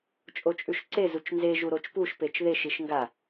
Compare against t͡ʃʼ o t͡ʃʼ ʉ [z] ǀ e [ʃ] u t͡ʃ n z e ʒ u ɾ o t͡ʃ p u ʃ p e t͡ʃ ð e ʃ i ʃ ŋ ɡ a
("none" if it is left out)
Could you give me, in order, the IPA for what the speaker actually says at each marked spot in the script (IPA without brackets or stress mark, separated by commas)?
ʃ, z